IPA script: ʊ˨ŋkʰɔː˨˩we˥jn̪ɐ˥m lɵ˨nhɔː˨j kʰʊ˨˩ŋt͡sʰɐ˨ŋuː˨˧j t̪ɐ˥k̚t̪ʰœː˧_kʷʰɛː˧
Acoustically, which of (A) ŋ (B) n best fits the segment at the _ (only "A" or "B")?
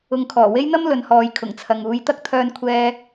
B